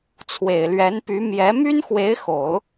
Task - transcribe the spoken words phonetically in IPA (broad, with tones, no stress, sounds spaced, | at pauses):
t͡sʰ w e˨˩ ɪ̯ l ɥ ɛ˧˥ n p y˧˥ m j ɛ˧˥ m y˥ n x w e˧˥ ɪ̯ x o˨˩˦ ʊ̯